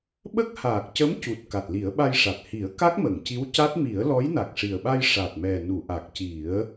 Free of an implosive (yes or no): no